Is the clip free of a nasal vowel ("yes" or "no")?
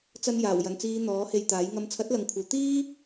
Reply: yes